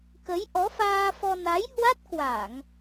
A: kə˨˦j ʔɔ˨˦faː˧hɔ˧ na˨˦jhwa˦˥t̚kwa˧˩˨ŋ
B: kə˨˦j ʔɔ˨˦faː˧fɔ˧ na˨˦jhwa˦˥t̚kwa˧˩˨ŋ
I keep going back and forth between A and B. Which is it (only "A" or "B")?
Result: B